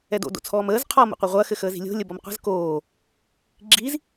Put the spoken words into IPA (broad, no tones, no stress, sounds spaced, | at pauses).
ɛ d o̰ d o̰ t͡sʰ ɔː m əː z qʰ ɔ m ṵ qʷ ɛ ʁʷ ɐː x ɘ x əː z i̤ lʲ o̤ lʲ ə b ɔ m qʷ ə̤ z k oː | ɡ͡ǁ i z